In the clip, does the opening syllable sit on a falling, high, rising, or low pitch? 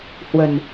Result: low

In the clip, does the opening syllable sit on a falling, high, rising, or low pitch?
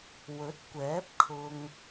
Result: rising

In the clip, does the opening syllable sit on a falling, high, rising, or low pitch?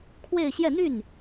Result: falling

